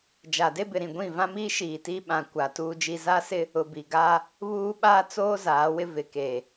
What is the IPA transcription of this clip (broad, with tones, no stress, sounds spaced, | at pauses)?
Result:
d͡ʒ a˨ d e˦ b ɪ˨ ɾ ĩ˨ ɡʷ ĩ˦˨ v ã˦ m iː˦ ʃ iː˨ t iː˦ ɓ ã˨ kʷ a˨ t uː˦ d͡ʒ i˦ z a˦ s ɪ˦ | ʊ˨ b i˨ ɡ aː˦ | β uː˦ ɓ aː˦ t͡s oː˦ z aː˨˦ w ɪ˦ v ɪ˨ k eː˨